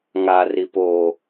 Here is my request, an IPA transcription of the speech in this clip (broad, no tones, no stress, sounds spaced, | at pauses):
ŋ a r i p o